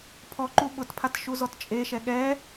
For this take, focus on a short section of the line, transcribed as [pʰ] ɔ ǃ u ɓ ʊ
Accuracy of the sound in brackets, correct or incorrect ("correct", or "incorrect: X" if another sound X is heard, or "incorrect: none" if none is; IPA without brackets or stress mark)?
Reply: correct